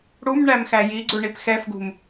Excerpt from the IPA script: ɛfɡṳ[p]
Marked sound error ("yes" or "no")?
yes